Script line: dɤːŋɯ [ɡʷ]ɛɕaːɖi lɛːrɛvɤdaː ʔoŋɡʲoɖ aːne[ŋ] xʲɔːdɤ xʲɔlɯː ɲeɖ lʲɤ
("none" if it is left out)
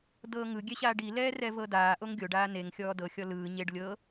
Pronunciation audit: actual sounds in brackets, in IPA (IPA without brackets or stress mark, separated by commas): ɡʲ, ŋ